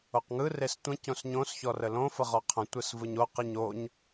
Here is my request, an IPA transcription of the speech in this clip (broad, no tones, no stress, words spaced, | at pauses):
oqŋɯ restʷə̃ cõsɲõs çɔrəlõ fəʁɔqʰə̃ tʷɯsvɯɲo qɯɲoɲ